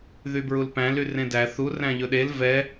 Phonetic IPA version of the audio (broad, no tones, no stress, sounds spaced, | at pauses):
ð y b ɹ u l p æ̃ l y r ẽ d æ θ u r æ̃ ʎ ɵ ɗ e l v ɛ